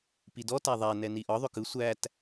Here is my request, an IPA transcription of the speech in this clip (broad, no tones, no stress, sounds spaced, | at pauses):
p i d ɔ t æ ðˤ æ n ɛ n i ʔ ɒ ðˤ ʏ k ɯ sʷ æ t